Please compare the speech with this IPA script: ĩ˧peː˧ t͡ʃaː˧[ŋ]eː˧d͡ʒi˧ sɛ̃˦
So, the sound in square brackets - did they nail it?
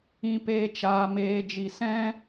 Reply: no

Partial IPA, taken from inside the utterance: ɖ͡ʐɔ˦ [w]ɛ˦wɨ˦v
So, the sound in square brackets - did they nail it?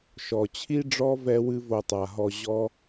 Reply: no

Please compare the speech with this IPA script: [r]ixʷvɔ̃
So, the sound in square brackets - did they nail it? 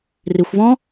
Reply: yes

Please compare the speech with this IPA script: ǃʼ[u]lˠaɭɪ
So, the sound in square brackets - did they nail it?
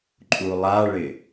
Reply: yes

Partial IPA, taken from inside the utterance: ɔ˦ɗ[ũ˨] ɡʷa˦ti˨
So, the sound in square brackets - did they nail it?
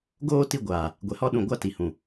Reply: yes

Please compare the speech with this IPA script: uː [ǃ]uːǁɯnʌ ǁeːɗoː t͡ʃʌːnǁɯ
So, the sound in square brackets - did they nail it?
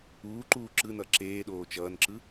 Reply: yes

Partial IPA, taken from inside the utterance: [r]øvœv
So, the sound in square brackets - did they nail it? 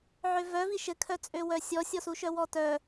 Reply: no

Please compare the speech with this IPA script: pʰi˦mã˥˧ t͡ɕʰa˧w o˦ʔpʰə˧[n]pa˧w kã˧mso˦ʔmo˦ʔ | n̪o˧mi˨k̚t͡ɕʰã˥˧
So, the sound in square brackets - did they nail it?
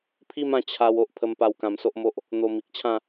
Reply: no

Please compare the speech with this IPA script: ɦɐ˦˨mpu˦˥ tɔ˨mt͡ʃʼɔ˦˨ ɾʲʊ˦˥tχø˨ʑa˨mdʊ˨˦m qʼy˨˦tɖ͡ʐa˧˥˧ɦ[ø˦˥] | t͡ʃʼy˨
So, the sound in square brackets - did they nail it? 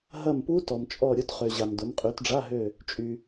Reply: no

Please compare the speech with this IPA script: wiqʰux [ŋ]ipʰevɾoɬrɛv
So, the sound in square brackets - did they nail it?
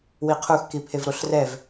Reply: no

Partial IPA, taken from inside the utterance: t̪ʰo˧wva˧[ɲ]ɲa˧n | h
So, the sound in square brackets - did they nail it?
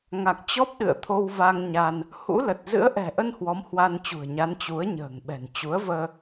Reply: no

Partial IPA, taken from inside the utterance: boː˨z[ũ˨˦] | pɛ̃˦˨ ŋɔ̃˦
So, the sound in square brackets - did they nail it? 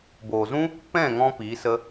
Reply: no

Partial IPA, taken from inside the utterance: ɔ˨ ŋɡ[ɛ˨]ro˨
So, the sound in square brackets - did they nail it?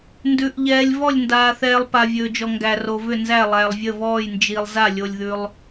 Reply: no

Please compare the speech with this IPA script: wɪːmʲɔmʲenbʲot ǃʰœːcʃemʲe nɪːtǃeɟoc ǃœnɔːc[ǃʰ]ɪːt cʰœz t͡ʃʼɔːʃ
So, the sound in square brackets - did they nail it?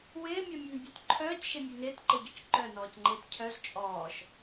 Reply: no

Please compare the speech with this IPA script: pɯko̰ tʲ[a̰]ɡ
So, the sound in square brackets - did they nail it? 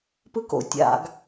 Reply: yes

